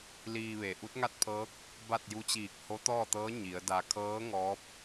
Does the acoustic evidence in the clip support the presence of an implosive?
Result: no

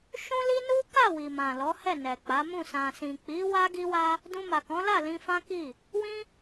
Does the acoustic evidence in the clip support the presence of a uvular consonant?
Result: no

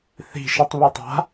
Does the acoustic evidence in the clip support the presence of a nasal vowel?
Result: no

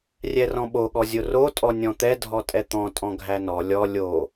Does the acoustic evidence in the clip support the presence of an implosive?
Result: yes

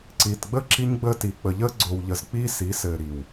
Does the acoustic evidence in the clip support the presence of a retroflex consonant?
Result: no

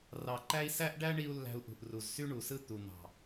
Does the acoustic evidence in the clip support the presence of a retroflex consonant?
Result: yes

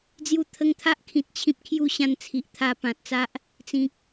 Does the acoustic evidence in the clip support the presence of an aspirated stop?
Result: yes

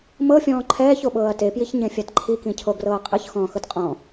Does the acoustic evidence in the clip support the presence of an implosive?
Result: yes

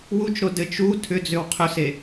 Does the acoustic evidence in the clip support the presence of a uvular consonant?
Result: yes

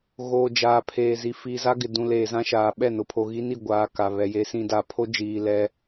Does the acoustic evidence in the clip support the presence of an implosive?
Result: yes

